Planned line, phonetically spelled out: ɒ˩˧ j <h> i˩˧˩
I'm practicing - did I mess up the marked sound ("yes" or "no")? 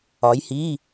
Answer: no